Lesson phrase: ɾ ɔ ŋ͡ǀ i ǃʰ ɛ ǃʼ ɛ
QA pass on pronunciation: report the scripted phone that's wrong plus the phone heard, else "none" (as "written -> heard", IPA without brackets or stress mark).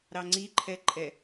ɔ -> ɑ